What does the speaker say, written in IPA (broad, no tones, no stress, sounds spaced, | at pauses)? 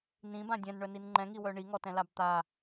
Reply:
n ĩ b ã dʲ ɛ̃ n ɳ œ n i n ŋ͡ǃ ɛ̃ ŋ i w œ ɳ i ŋ ɔ t ɛ̃ l a b t̪ a